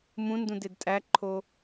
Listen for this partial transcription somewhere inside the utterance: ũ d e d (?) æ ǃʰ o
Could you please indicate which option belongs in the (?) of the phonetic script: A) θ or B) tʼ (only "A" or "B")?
B